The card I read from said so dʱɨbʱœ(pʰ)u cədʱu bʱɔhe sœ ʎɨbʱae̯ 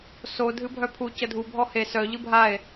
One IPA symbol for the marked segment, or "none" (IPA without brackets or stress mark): pʰ